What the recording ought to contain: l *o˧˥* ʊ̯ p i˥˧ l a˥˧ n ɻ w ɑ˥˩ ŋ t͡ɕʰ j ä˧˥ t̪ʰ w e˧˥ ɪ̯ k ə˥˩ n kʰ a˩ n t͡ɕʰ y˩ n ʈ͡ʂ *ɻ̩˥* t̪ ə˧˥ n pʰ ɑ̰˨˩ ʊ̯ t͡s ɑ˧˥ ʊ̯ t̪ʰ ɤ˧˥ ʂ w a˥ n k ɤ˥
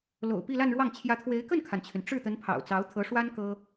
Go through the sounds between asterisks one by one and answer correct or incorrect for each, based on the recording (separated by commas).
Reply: incorrect, incorrect